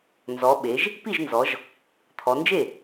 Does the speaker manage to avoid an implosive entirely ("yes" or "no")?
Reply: no